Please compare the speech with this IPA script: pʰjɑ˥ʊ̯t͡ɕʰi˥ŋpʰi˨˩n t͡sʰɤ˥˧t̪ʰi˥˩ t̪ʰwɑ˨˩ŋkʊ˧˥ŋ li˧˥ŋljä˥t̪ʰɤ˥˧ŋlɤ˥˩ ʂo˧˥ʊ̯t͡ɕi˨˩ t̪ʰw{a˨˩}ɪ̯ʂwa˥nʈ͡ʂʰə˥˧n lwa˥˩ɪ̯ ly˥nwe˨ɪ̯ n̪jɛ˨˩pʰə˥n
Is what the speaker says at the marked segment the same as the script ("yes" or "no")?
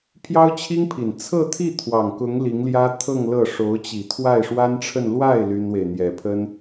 no